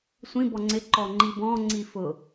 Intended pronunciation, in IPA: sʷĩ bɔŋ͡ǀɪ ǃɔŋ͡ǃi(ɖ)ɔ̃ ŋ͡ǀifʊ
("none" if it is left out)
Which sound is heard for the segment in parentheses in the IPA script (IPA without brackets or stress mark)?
b